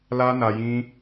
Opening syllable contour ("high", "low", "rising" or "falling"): high